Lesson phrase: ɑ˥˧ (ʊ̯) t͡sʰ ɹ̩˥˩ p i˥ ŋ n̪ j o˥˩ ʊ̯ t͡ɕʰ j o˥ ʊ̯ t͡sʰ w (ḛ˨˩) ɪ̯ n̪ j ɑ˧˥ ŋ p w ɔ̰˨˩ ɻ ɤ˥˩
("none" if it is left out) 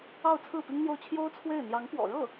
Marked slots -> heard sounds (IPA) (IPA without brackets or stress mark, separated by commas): ʊ̯, e˥˩